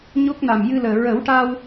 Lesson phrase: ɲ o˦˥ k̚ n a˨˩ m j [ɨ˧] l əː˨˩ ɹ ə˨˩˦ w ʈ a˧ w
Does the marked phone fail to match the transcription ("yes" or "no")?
no